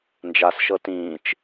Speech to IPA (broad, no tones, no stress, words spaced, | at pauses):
nd͡ʒasʃɤ tĩːt͡ʃ